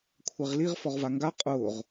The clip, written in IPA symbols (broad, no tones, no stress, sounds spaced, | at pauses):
kʷʰ ɛ ʁ l i ʁ f ɔ ʁ v a ŋ ɡ a qʼ ʊː ʁ